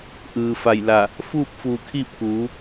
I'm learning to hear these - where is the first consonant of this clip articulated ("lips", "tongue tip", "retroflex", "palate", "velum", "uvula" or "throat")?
throat